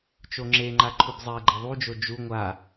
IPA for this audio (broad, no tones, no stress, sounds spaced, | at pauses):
t͡ʃ o ŋ͡ǁ e ŋ͡ǃ a ǃʰ u b zˤ ɛ ɡ͡ǃ ɛ ðˤ u d͡ʒ o d͡ʒ u ŋʷ a